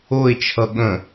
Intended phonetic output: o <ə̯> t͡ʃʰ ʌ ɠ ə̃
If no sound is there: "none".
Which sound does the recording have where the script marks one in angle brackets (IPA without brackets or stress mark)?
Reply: ɪ̯